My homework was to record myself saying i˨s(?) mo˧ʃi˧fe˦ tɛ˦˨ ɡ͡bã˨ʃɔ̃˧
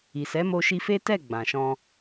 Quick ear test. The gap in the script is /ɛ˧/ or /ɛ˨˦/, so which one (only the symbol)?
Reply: ɛ˨˦